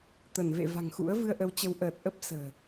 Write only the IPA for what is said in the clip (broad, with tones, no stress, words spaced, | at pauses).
t̪ə˧˩nvḛ˧˨va̤˨˩ŋxṵ˧˥ə̯ vɨ˧ə̯ʔə˨˦wt͡ɕə˨˦w ʔəː˨˩t̚ʔə˦˥p̚sə̤ː˨˩